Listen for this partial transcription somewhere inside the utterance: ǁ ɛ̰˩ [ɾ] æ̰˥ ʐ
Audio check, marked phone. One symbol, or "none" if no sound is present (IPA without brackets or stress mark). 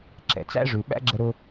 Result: t͡s